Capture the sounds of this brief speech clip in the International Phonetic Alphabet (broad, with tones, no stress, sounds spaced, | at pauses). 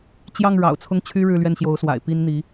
t͡ɕ j ɑ˥˩ ŋ ɻ ɑ̰˨˩ ʊ̯ t͡sʰ ʊ˥˩ ŋ t͡ɕʰ y˥ ɻ ɻ̩˥˧ l ɥ ɛ˥˩ n ɕ j o˧˥ ʊ̯ s w a̰˨˩ ɪ̯ p i˥ n n̪ i˧˥